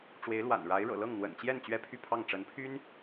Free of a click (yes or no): yes